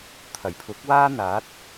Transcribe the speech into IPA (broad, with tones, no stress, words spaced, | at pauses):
t̪ʰɐ˨˩jpʰʊ˨˥k̚ waː˥ n̪aː˨˥t̚